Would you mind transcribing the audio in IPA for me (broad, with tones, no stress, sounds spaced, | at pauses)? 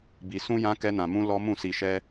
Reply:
b i˧ s ũ˦ j ã˦ k ɛ˦ n ã˧ m ũ˦ l ɔ˦ m ũ˦˨ s i˧ ʃ ɛ˦